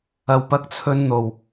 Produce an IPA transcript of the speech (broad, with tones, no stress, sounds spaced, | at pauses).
ɐ˨ w p ɐ˧ k̚ t͡sʰ ɵ˧ n n̪ o˨ w